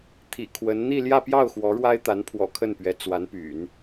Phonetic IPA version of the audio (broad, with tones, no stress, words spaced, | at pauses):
t̪ʰḭ˨˩kʰwə˧˥n n̪i˥˧ljä˥˧pjɑ˥˩ʊ̯ xwɔ˧˥ɻwa˥ɪ̯t̪a˧˥n pʰwɔ̰˨˩ kʰə˥˩npɥɛ˧˥t͡swa˧˥npy̰˨˩˦n